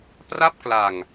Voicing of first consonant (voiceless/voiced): voiceless